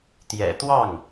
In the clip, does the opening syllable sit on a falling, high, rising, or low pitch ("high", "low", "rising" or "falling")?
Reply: low